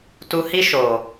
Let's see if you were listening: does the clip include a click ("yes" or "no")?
no